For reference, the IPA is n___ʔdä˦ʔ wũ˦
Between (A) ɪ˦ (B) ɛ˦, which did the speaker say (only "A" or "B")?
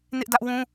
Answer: A